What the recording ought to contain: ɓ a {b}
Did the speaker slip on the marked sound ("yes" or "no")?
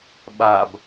no